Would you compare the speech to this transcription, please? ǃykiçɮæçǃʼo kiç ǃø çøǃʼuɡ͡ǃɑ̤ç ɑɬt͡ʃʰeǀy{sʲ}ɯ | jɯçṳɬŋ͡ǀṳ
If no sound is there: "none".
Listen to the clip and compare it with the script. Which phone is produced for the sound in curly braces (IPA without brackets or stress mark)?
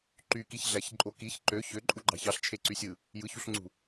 sʲ